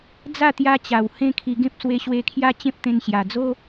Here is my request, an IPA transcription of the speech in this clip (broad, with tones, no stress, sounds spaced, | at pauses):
d͡z a˥˧ t̪ j a˧ t͡ɕ a˨˩ w h ẽ˦ kʰ i˧ ɡ ẽ˦ p̚ s w e˧ ɕ w e˧ kʰ j a˦ t͡ɕ ẽ˦ p̚ t̪ ẽ˧ n ɕ j a˨˩ d͡z o˦